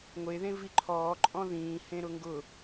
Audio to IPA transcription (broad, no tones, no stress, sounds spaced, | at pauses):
ŋʷ e ð ẽ v i ǃʰ ɔː ǃʼ ɔ̃ ð ĩː h ẽ ɾ ʊ ŋ ɡ ʊ